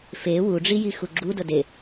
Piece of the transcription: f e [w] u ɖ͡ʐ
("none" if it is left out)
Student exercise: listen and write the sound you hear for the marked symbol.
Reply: w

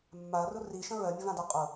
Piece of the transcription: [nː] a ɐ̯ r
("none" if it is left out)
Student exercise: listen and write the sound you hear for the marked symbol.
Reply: mː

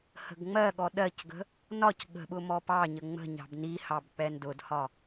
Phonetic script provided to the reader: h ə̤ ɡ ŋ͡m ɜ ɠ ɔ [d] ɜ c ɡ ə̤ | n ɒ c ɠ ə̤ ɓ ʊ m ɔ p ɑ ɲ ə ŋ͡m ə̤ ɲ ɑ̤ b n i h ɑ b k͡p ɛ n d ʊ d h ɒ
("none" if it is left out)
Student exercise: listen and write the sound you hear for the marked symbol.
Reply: ɗ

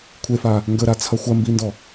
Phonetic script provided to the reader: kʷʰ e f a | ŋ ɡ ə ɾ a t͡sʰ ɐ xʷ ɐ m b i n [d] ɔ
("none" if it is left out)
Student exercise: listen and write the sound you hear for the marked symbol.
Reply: d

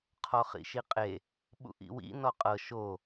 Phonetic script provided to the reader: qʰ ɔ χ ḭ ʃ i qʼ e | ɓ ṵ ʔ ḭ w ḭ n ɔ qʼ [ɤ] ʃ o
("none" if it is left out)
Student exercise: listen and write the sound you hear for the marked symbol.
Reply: ɤ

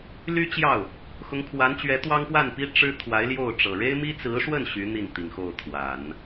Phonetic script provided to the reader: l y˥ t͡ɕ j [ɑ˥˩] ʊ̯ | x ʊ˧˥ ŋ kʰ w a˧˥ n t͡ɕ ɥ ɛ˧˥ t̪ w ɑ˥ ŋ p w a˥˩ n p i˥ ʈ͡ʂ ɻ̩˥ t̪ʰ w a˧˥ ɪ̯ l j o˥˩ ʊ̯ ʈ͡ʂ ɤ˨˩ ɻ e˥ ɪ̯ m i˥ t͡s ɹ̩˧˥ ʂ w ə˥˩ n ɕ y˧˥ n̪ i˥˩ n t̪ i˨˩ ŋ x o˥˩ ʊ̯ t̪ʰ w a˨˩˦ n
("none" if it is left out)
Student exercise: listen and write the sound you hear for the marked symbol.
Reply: ɑ˥˩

